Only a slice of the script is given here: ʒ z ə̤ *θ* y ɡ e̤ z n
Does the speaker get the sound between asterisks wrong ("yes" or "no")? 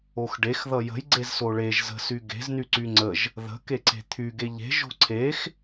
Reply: yes